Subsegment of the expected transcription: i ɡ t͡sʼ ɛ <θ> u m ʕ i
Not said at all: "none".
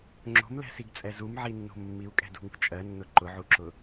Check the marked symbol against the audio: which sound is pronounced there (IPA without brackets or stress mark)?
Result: z